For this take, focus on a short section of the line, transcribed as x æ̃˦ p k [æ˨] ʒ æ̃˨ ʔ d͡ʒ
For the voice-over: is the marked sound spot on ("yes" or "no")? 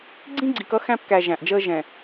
yes